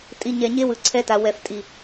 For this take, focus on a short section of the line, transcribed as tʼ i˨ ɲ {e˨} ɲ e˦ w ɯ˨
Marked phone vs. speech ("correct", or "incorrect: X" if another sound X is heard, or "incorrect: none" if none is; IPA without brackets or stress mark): incorrect: ɛ˨